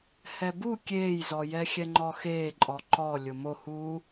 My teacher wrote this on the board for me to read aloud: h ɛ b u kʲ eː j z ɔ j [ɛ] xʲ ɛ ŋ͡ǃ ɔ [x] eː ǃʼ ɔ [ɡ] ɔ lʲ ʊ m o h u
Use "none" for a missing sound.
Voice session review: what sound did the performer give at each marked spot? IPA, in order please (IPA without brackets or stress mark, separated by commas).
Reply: ɛ, x, ǃ